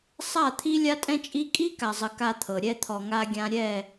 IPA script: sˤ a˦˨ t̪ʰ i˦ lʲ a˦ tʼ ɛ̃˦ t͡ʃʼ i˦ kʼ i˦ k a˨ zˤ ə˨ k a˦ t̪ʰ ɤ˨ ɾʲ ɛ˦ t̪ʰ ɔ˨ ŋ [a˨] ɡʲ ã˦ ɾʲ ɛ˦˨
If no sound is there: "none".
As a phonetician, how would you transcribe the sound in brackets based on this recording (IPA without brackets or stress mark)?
a˦